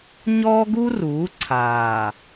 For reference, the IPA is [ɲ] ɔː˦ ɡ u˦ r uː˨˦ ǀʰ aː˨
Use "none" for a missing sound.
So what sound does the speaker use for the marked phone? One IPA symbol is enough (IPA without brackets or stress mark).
ɲ